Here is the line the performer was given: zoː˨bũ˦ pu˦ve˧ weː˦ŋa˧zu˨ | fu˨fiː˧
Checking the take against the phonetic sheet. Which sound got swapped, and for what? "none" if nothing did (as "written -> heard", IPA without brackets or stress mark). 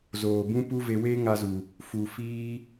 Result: none